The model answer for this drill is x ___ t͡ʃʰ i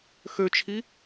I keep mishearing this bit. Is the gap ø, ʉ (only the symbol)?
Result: ø